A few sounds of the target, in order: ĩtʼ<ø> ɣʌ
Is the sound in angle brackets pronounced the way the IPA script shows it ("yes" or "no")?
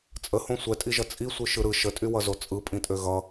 yes